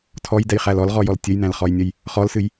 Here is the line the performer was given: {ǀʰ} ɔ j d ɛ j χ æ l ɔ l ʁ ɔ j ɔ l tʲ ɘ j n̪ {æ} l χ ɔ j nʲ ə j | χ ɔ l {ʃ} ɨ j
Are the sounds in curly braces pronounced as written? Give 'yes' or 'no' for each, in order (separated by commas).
no, no, no